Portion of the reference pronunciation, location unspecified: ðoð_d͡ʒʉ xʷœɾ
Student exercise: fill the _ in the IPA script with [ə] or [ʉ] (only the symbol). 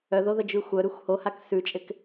ə